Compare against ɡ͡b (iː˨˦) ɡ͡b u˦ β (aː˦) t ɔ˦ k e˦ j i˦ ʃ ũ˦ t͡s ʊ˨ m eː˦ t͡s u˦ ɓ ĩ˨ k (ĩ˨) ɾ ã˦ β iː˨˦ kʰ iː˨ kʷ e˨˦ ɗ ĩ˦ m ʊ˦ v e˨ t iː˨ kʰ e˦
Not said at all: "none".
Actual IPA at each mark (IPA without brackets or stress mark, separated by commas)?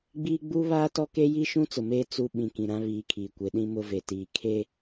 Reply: iː˦, aː˦, ĩ˨